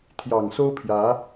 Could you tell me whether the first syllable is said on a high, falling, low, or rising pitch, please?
low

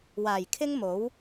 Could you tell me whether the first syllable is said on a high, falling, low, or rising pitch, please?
low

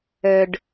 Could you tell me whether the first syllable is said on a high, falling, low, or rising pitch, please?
low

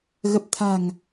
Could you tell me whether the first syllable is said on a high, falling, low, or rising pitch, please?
low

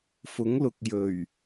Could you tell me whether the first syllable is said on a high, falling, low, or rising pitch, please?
rising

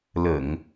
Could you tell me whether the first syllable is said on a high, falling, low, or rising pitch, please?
low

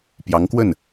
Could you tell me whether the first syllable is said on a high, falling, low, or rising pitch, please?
rising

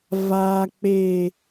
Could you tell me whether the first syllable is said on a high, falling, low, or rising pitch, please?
low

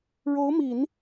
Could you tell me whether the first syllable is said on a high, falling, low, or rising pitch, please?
rising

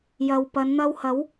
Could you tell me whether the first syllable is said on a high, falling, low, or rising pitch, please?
low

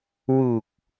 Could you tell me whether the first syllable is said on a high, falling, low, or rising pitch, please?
low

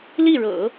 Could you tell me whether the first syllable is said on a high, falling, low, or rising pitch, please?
falling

